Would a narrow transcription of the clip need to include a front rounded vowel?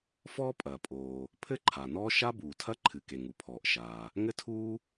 no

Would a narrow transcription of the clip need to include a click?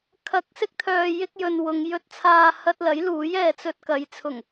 no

